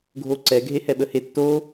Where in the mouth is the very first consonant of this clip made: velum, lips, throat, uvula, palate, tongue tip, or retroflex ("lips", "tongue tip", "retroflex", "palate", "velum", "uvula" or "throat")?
velum